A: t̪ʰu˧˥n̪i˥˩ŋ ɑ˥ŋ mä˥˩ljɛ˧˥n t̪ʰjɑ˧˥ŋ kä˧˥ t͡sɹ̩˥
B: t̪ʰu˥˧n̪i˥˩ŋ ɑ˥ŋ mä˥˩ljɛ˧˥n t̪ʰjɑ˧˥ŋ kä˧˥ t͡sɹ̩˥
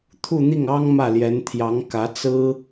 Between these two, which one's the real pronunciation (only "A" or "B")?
B